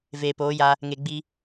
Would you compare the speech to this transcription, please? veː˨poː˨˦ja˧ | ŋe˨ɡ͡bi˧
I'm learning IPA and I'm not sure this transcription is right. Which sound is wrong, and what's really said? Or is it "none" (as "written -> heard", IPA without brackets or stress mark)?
none